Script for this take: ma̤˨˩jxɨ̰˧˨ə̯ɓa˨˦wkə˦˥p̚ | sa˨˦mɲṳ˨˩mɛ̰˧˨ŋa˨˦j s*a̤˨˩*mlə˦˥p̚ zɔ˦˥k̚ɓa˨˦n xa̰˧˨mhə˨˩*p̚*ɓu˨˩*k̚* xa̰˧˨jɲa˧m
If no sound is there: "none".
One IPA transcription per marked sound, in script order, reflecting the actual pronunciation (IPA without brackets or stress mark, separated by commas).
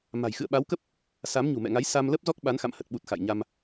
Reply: a˧, t̚, t̚